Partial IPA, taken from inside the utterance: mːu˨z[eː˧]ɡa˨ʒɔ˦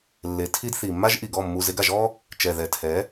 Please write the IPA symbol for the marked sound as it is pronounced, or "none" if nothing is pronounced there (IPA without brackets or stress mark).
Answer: e˧